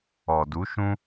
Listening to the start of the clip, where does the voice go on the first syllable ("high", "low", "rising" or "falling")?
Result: low